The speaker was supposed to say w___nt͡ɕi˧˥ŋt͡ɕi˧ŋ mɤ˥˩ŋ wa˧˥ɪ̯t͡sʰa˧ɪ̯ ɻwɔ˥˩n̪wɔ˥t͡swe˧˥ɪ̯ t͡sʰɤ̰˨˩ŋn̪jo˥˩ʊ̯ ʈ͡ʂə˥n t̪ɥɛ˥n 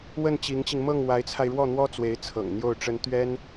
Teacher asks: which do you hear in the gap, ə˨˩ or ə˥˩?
ə˥˩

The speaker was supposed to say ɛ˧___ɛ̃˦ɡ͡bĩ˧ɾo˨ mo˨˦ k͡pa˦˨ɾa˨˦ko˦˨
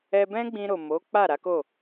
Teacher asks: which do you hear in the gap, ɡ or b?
b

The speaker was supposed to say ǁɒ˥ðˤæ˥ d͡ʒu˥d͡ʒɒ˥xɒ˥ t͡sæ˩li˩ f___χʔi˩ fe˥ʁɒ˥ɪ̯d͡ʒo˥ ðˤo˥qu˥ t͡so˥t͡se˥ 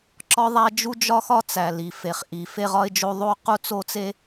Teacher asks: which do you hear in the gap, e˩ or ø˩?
e˩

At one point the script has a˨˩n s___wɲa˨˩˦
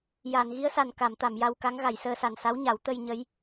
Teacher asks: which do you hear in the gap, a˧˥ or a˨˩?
a˧˥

